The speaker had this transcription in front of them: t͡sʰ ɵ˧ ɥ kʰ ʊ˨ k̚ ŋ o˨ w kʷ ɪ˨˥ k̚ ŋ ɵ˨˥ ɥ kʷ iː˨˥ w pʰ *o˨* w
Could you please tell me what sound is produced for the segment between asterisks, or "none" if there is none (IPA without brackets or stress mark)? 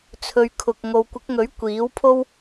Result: o˥